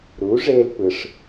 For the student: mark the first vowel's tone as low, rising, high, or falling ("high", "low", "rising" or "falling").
rising